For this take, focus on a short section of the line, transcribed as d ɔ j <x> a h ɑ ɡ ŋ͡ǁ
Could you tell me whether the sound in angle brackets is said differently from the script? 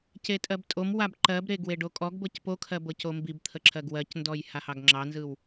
yes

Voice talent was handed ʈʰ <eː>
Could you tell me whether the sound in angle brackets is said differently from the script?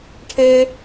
yes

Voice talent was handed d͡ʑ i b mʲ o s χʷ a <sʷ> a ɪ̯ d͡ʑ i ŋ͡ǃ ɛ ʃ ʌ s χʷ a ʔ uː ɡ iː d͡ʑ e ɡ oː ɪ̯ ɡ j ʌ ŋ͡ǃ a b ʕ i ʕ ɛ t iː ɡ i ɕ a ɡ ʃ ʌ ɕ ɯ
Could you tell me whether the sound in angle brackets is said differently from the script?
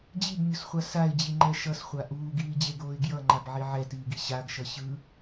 yes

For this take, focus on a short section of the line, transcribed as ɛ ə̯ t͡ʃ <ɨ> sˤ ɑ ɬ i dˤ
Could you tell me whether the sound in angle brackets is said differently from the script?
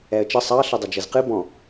yes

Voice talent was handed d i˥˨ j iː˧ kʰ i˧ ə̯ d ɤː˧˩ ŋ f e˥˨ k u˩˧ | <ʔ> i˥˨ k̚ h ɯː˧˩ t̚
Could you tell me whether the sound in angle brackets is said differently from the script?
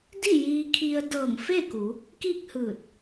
yes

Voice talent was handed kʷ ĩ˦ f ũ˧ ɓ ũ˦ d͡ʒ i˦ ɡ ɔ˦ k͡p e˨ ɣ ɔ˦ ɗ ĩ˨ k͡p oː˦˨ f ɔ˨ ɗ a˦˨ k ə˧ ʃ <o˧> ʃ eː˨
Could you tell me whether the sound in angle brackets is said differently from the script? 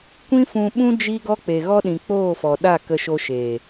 no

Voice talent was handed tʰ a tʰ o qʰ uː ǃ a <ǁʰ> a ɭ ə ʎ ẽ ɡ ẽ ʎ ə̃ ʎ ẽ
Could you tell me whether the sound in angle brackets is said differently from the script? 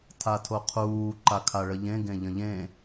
yes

